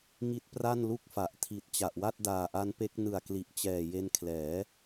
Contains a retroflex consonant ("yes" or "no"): no